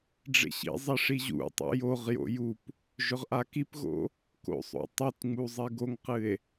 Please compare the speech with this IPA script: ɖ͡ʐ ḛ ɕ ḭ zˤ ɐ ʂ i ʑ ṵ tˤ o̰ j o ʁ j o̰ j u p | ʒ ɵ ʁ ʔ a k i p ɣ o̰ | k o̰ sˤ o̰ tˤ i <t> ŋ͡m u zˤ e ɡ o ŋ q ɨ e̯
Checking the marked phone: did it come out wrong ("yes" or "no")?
no